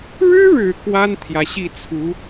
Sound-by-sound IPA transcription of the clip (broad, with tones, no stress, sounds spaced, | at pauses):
ɻ ɻ̩˥ ɻ ɻ̩˨˩ k w a˥ n t̪ʰ j ä˨ ɕ i˥˩ t͡sʰ u˧˥